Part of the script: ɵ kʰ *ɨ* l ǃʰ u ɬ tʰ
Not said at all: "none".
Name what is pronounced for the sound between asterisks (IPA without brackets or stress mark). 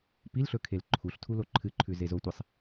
e